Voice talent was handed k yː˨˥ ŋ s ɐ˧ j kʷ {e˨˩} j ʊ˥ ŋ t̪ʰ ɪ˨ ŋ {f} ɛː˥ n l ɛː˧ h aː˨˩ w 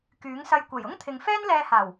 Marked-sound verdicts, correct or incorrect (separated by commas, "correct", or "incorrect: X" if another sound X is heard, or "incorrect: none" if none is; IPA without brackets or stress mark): correct, correct